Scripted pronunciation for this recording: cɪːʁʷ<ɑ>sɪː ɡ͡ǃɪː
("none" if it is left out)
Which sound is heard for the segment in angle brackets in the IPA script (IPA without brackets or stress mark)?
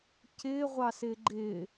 ɑ